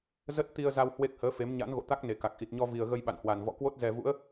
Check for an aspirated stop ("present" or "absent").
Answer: absent